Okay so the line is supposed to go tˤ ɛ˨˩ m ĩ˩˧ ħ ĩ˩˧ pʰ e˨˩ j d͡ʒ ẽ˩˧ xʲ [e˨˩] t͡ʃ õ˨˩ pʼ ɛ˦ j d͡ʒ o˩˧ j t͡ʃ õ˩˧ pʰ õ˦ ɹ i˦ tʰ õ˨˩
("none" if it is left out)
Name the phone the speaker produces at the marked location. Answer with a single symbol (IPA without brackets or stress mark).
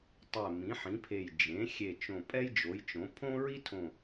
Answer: e˨˩